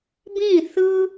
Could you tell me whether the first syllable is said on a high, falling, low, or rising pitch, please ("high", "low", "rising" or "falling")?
falling